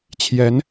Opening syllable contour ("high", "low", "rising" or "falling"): rising